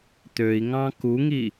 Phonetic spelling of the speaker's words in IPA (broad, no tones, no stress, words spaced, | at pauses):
t̪øi̯ŋɑ̃ kuŋi